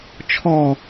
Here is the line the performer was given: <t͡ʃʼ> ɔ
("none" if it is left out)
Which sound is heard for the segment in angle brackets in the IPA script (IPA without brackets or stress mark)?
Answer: t͡ʃʰ